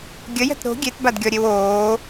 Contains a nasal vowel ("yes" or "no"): no